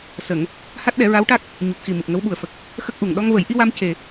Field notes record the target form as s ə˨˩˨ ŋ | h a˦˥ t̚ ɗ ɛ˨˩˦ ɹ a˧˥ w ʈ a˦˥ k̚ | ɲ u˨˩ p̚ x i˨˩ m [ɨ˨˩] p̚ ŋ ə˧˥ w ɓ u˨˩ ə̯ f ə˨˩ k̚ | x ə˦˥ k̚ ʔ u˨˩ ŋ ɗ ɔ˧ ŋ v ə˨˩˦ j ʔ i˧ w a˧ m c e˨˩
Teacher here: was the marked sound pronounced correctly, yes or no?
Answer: yes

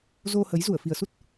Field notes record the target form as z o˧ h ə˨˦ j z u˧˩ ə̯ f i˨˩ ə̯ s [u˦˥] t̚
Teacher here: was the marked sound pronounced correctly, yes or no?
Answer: yes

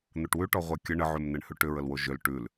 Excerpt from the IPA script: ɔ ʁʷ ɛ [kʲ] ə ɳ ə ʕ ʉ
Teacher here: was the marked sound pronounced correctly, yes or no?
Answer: yes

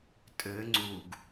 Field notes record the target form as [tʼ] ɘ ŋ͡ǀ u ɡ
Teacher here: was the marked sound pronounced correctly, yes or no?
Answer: yes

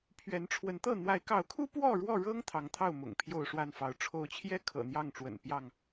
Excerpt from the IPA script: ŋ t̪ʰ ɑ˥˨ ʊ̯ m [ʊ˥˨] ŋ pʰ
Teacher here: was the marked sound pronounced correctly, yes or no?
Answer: no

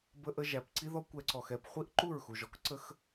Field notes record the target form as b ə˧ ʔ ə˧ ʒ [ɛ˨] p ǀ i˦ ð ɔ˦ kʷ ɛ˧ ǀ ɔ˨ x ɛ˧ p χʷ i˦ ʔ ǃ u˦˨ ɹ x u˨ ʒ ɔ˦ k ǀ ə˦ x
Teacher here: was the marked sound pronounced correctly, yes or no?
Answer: no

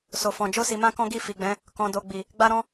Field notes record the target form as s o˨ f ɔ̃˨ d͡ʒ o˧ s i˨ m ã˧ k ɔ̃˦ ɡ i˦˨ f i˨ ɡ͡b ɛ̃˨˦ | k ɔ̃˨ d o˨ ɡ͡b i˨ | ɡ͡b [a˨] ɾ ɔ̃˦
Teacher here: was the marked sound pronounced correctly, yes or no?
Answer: no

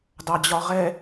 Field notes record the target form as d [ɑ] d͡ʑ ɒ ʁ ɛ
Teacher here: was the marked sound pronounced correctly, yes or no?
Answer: yes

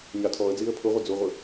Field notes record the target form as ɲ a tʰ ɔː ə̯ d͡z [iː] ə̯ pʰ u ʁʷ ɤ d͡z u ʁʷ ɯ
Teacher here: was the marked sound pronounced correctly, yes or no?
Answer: yes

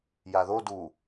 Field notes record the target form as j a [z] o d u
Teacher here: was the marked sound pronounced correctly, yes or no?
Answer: no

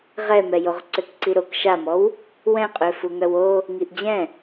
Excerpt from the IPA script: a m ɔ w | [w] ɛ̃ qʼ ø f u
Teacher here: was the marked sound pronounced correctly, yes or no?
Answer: yes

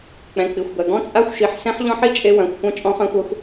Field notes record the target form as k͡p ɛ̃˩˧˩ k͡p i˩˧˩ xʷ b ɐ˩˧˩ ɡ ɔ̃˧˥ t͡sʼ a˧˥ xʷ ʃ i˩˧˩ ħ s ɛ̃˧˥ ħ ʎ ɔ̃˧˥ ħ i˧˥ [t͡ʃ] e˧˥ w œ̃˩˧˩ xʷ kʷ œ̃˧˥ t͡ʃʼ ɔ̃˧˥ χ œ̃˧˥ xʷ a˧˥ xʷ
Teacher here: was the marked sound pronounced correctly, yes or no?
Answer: no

